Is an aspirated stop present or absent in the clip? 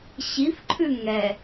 present